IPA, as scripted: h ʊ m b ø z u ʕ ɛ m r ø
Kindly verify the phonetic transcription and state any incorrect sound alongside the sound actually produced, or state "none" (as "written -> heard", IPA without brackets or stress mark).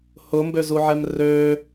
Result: none